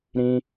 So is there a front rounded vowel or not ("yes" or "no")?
no